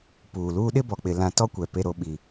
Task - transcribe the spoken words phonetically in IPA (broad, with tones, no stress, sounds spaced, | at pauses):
p uː˨ l uː˦ ɗ ɪ˦ b ɔ˨ k͡p ɪ˨ l ã˨ t ɔ˦ kʷ ɛ˨ p e˨ ɾ o˨ ɓ i˨